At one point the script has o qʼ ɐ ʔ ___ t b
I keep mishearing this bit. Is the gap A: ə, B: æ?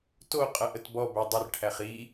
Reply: A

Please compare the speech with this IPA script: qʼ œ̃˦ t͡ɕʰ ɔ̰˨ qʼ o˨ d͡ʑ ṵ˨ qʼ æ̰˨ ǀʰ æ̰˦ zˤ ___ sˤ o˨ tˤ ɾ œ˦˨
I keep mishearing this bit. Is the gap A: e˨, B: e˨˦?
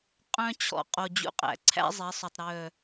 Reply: B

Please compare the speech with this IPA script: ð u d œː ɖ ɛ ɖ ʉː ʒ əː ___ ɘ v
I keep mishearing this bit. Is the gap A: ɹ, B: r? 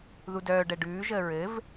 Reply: A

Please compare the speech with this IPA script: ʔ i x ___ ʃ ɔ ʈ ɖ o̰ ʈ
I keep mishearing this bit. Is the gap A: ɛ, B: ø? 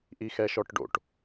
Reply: A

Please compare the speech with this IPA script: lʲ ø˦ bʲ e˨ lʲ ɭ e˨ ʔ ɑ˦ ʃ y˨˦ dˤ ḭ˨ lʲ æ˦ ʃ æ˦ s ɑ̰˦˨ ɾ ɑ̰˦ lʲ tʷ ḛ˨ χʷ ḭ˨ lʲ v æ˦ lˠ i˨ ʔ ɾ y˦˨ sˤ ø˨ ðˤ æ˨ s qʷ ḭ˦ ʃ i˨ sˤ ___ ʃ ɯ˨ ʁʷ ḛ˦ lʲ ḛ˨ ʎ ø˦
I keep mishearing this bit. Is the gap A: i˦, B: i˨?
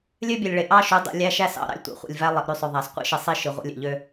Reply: A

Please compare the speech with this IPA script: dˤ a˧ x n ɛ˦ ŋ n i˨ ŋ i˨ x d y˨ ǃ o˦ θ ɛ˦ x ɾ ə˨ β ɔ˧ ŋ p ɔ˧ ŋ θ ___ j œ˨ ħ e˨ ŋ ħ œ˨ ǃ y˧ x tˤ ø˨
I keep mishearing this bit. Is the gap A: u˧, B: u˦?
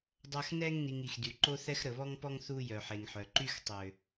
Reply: A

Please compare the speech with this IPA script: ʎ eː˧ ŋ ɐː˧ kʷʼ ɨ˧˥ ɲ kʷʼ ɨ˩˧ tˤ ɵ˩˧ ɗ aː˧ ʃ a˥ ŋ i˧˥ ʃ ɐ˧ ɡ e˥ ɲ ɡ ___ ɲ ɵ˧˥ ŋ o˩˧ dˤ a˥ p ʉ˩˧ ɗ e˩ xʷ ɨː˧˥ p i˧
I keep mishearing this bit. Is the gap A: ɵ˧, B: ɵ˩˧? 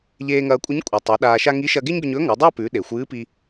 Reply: A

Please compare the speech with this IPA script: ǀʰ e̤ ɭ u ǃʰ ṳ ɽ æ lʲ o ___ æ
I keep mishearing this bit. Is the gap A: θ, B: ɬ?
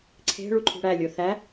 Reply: A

